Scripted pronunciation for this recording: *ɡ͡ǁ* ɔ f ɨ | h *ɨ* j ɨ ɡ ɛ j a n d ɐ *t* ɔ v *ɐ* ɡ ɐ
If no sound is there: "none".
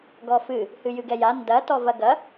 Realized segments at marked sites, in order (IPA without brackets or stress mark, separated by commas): ɡ, ɨ, t, ɐ